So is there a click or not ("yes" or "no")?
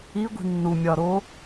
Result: no